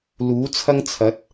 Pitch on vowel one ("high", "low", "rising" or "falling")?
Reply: rising